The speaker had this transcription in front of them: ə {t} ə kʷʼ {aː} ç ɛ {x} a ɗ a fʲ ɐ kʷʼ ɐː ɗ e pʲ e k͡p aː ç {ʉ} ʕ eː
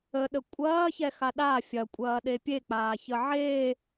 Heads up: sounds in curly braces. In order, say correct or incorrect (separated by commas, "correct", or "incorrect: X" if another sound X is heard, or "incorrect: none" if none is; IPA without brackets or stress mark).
incorrect: ɗ, incorrect: ɐː, correct, incorrect: ə